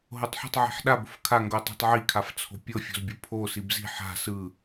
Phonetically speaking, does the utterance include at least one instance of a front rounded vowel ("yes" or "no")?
no